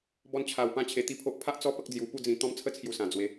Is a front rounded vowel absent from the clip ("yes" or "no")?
yes